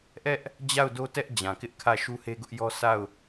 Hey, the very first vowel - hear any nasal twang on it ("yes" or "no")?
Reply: no